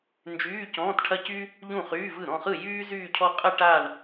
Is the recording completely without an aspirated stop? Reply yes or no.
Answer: no